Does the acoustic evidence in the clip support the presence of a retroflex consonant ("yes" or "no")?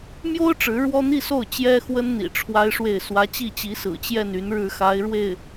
yes